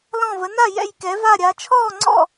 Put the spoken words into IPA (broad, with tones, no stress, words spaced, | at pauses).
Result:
lɔ̃˥˧və˧˥ na˥˧ jɛ̰˥˧jkɛ˧˥va˥˧ɾʲa˧˥ t͡ʃʰɔː˥˧ŋ͡ǀɔ̰˥˧